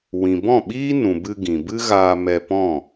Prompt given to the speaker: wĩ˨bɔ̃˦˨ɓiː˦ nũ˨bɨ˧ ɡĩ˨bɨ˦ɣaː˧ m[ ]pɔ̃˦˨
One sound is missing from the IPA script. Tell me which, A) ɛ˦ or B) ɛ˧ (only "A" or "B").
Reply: B